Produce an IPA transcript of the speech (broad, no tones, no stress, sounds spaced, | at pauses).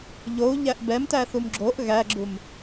ʎ o u̯ ʎ æ ʔ b ɛ m t æ θ u m ɡ͡ǁ o ʔ ɣ æ ɡ͡ǁ u m